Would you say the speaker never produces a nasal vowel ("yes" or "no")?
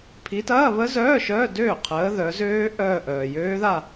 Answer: yes